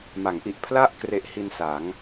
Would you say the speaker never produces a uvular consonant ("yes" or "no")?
yes